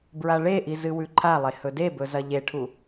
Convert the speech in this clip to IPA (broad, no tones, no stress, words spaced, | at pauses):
bɹaɭeʔi zɨwʉǃʰalˠe hɵdebɵ zɐʎeʈʰu